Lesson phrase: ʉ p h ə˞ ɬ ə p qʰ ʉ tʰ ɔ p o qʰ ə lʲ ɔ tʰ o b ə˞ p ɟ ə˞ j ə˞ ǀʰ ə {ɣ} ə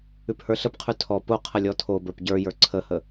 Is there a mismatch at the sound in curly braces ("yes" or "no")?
yes